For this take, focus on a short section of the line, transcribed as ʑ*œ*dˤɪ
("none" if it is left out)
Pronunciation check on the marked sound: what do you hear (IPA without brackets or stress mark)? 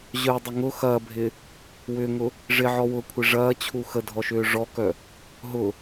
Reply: œ